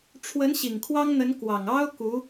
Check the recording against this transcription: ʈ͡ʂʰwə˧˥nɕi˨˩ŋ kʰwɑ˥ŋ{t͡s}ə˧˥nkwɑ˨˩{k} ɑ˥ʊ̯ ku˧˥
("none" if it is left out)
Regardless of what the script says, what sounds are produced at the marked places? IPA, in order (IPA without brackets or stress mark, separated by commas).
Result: n̪, ŋ